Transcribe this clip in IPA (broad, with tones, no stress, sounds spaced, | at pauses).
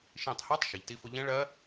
ʃ ĩː˧˩ tˤ h ɑ˦˥ tˤ ʃ i˩ ʎ t i˧ f ʊ˧ ʎ ɛ̃˦˥ ɭ ɜ˦˥